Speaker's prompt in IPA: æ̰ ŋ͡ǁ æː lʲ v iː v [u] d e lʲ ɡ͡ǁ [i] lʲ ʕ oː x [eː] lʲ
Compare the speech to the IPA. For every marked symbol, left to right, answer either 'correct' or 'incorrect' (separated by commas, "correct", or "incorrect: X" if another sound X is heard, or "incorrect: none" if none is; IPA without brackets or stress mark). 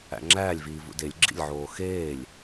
incorrect: ṵ, incorrect: ḭ, correct